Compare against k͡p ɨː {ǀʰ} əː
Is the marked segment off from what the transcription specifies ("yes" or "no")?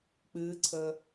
no